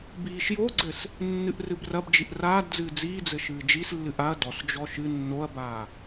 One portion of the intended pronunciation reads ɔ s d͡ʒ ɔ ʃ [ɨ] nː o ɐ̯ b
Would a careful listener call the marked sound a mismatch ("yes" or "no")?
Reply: no